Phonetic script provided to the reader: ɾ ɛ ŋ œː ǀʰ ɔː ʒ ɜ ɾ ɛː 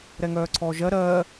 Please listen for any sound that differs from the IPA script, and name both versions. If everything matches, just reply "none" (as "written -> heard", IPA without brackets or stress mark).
ɛː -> ɜː